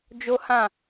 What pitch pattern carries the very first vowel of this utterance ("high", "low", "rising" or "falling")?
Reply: high